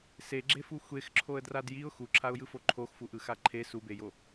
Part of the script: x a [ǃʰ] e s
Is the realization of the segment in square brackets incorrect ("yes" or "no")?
no